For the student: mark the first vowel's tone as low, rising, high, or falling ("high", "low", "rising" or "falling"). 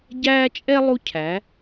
high